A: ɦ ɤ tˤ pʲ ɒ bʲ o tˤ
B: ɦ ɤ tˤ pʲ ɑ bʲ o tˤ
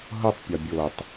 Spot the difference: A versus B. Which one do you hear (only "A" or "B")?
A